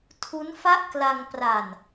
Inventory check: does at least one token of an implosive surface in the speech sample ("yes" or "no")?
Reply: no